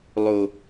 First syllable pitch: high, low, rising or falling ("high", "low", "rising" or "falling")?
low